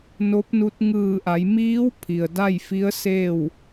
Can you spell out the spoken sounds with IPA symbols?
n o˧˥ p̚ n u˧˥ t̚ ŋ ɯː˧˩ ʔ a˩˧ j m iː˧˥ w pʰ i˩ ə̯ d a˥˨ j f i˧˥ ə̯ s eː˥˨ w

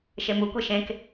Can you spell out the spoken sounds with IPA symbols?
ʃ e m u kʷ e ʃ ẽ k

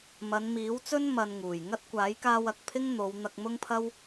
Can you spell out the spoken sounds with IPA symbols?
m ɐ˨˧ n m iː˨˥ w t͡s ɵ˥ n m ɐ˧ n ŋ uː˨˩ j ŋ ɐ˥ t̚ kʷ aː˨˥ j k aː˧ w ɐ˨ k̚ pʰ ɪ˥ ŋ n̪ o˨˧ w n̪ ɐ˧ k̚ m ʊ˥ ŋ pʰ ɐ˥ w

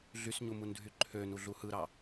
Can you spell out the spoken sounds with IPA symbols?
ɮ y s ɲ u m u n dʱ y ǃʰ ø n u ɮ u h ɯ ɾ ɑ

